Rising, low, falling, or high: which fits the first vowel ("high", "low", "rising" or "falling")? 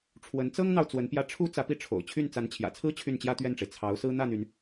rising